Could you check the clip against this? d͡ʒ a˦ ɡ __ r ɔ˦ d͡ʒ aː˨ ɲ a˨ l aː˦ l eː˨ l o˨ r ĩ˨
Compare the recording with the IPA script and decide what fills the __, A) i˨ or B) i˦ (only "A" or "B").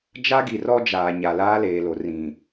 A